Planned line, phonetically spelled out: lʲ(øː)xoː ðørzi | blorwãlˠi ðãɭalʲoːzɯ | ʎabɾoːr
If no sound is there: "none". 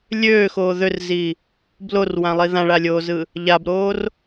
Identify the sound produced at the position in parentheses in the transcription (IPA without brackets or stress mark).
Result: øː